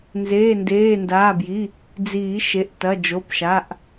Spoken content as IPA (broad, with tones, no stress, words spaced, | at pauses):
nzeː˩˧˩ndeː˩˧˩ndaː˩˧˩bji˩˧˩ | d͡ziː˨˩˦ʃe˩˧˩ʔ tɐ˩˧˩d͡ʒo˩˧˩pʃa˩˧˩ʔ